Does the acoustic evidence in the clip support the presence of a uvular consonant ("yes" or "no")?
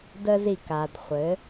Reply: yes